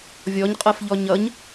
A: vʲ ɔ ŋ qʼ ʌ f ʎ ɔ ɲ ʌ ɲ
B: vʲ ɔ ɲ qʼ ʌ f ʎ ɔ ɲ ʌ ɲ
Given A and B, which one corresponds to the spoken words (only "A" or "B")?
B